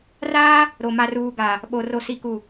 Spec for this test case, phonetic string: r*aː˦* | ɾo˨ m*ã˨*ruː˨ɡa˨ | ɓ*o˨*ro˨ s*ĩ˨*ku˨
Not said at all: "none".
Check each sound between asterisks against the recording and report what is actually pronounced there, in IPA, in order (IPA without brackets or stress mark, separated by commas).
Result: aː˦, a˨, o˨, i˨